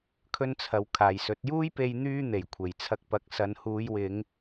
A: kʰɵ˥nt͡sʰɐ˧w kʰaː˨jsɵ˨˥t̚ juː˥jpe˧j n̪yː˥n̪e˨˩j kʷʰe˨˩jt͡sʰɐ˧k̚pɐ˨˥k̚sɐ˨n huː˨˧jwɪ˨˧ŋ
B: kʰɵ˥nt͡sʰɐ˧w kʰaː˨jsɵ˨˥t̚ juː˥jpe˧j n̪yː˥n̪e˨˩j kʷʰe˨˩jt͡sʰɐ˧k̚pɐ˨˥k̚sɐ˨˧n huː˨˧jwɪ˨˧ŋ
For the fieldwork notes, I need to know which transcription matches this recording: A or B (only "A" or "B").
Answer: B